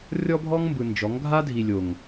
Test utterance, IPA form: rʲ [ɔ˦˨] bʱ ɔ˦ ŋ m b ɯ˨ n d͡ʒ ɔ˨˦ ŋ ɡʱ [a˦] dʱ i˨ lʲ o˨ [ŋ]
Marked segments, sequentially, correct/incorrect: incorrect, correct, correct

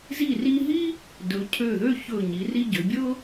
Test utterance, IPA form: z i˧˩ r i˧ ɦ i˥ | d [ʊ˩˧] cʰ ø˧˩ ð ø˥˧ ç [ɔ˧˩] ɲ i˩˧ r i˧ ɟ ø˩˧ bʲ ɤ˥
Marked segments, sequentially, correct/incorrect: incorrect, incorrect

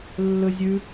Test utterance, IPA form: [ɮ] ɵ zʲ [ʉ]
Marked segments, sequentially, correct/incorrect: incorrect, correct

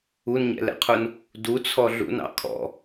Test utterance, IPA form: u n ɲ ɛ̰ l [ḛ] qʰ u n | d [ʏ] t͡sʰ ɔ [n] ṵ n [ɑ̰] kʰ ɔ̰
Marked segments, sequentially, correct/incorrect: incorrect, incorrect, incorrect, correct

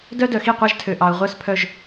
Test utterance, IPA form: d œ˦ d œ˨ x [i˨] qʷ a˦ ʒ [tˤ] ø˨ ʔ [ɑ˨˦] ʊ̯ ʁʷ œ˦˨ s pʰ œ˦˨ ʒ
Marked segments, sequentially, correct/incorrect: incorrect, incorrect, incorrect

